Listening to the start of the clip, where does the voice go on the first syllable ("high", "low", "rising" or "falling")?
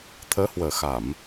rising